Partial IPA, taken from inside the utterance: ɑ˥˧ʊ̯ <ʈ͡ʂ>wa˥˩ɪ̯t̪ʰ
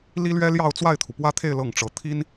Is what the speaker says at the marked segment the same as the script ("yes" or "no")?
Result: no